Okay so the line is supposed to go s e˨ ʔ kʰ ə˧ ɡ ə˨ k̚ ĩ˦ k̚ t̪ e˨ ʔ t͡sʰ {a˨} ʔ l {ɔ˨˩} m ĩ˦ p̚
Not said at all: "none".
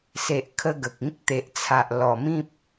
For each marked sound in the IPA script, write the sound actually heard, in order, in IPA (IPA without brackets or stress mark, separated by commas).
a˨, ɔ˨˩